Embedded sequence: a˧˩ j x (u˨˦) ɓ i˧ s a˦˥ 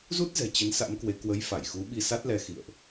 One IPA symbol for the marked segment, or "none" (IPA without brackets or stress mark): u˨˦